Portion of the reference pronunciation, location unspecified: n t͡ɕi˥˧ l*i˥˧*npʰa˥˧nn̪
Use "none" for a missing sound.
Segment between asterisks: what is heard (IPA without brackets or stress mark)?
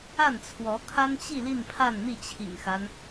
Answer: i˥˧